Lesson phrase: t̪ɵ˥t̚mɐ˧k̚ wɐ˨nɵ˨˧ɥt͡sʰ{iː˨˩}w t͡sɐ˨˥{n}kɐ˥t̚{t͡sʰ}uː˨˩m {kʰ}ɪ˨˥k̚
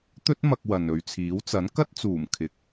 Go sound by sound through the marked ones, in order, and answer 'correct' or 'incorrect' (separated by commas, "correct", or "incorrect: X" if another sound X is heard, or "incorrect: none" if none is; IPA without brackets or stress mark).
incorrect: iː˨˥, correct, incorrect: t͡s, correct